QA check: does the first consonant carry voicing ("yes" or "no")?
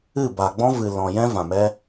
yes